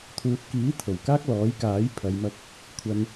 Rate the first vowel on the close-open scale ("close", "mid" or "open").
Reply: close